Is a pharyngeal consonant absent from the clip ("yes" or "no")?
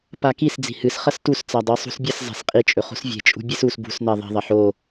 no